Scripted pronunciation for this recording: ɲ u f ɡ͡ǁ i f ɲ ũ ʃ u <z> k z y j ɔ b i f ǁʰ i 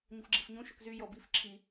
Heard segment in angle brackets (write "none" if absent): none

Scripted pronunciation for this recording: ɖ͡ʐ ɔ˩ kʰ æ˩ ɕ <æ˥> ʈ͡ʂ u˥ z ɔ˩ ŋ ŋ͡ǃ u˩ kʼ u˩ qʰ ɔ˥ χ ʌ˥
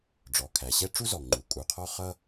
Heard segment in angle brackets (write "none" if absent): ɛ˥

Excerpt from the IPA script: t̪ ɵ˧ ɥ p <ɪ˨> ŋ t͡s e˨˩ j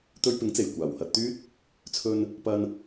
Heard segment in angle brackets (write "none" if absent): ɪ˨˥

